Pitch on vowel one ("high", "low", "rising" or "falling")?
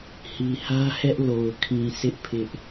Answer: low